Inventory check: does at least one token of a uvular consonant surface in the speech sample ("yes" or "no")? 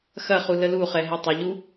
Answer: yes